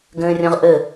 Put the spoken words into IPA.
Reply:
ɡ ə̃ː rʲ ɔ̃ ʁ ʔ ə

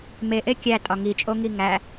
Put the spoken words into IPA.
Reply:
m e ʔ e kʲ æ tʼ ɒ ŋ i t͡ʃʼ o ŋ i ŋ æ

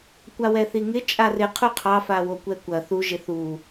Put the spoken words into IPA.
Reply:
kʷ a w ɛ θ i ŋ ɪ t͡ʃʼ a r ɪ qʰ u qʰ ɑ f a w o kʷ ɛ kʷ ɐ θ u ʒ ɪ θ u

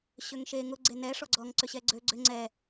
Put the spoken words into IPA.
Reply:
ɕ ø ŋ ʃ e ŋ ʊ ɡ͡ǀ e n ɛ ʂ ɔ ɡ͡ǀ ɔ ŋ ǀ ʏ ɕ ɛ ɡ͡ǀ ø ɡ͡ǀ ʏ ŋ͡ǀ ɛ

